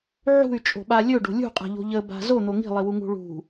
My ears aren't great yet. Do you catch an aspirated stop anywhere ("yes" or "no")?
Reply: no